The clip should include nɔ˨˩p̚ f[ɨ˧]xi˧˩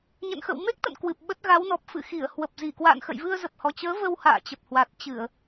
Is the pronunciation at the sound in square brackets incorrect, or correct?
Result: incorrect: ɨ̰˧˨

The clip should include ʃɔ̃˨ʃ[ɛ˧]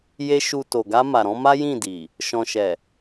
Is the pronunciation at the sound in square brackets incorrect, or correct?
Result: incorrect: ɛ˨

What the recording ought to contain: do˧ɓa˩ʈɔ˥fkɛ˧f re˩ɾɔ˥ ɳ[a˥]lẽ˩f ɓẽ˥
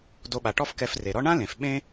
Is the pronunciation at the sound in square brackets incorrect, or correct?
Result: incorrect: ã˥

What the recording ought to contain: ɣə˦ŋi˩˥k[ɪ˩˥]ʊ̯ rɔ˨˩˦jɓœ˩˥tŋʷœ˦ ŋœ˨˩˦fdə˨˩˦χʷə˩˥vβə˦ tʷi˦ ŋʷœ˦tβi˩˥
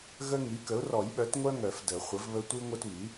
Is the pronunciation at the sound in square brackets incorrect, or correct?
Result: incorrect: ə˩˥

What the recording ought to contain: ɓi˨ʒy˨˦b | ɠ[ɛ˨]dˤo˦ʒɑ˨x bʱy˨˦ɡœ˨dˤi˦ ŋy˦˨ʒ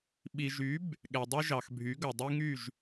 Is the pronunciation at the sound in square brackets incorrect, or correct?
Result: correct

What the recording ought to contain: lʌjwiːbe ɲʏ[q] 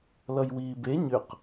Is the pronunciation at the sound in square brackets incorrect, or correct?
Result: correct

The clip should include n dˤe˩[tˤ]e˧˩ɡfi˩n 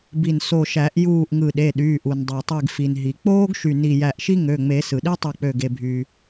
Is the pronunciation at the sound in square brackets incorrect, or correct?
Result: correct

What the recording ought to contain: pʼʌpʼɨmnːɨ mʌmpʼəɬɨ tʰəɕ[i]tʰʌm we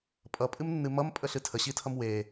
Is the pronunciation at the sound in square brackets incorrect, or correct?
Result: correct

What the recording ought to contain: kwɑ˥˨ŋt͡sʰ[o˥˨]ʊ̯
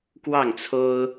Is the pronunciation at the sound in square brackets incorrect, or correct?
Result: incorrect: o˦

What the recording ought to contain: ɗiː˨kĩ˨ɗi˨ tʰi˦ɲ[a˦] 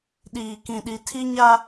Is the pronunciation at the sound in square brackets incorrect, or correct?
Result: correct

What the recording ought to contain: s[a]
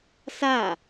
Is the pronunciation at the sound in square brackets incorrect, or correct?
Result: correct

